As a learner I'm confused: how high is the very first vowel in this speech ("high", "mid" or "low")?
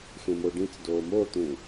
mid